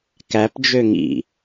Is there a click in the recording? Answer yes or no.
no